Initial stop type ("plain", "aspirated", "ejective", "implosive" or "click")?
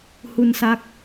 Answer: plain